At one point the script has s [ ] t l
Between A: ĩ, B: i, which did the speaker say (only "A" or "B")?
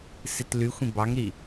B